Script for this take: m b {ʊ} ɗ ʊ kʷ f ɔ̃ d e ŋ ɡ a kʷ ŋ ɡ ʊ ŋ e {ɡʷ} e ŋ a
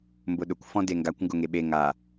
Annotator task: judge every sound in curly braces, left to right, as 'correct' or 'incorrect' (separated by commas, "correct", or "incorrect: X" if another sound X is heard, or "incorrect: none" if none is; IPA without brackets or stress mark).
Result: correct, incorrect: ɓ